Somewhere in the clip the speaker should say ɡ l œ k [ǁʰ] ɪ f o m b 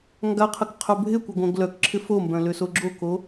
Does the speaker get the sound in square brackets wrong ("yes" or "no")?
no